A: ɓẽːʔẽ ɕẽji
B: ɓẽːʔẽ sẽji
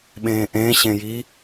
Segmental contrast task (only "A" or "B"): A